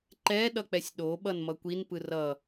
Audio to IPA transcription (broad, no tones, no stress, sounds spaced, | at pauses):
ǃ ɛ ɗ ʌ k͡p ɛ sʲ ɗ o ɓ ʌ n m ʌ kʷ i n p ɯ r ʌ